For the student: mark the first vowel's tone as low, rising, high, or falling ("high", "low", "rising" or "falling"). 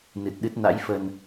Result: low